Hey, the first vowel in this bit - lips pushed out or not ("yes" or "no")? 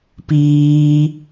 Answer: no